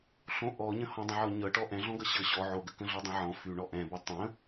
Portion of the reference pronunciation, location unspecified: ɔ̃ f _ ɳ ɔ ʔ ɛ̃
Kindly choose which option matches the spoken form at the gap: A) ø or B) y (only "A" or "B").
B